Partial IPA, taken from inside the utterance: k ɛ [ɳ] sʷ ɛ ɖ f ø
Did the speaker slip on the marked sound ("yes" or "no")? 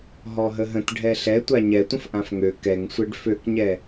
yes